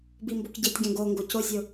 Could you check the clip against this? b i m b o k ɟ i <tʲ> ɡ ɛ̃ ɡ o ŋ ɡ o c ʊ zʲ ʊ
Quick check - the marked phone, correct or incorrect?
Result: correct